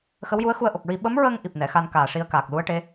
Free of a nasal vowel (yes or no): yes